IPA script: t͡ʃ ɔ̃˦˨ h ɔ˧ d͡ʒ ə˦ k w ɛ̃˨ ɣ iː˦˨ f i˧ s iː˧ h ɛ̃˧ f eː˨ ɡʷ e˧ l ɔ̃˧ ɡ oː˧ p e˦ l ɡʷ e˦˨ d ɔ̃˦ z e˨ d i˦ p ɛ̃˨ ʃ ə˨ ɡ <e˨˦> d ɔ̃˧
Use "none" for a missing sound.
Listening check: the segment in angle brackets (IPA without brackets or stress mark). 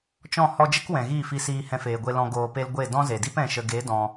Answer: e˨˦